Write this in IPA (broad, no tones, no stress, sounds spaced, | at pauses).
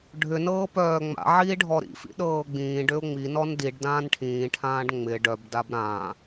ɖʱ ʏ n ɤː p œː ŋ͡m a̰ ʕ iː ɖʱ ɔ ɾ ḭ f ḭ ɗ ɤː ɡ͡b ĩː ɖ ʏ ʊ̯ ŋ͡m i n ɔ n d i ɖ d ãː n ʈʰ ĩː ʈʰ ãː ɖ ŋ͡m ɪ ɖ œ b d a b ɾ ã